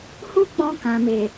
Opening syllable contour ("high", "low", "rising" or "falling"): high